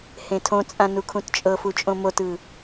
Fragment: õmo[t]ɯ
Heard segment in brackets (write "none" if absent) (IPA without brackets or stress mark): t